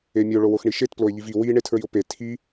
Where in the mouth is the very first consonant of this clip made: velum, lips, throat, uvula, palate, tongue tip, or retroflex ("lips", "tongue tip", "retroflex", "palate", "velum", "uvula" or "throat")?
lips